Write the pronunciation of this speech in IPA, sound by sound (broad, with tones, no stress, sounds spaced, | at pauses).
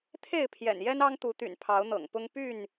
t̪ʰ e˥˨ ɪ̯ pʰ j ɛ̰˨˩ n j ɛ˦ n ɑ˦ ŋ t̪ u˨˦ t̪ y̰˨˩ n pʰ ɑ˨˦ ʊ̯ n̪ ɤ̰˨˩ ŋ p ʊ˦ ŋ p y˥˨ n